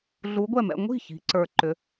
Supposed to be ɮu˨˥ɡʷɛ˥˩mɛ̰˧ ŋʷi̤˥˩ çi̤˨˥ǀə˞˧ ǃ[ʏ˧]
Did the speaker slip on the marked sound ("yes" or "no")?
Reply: yes